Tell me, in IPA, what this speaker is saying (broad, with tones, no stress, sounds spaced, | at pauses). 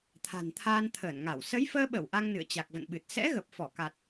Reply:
t̪ʰ a̤˨˩ n t̪ʰ aː˧ n t̪ʰ əː˧˩ n ŋ a˧˩ w s ə˨˦ j f əː˧ ɓ ə˧˩ w ʔ a˧ ŋ n ɨ̰˧˨ ə̯ t͡ɕ a˨˩ k̚ v ə̰˧˨ n ɓ ɨ˨˩ t̚ s ɛ̰˧˥ ɣ ə˨˩ p̚ f ɔ˧˩ k a˨˩ t̚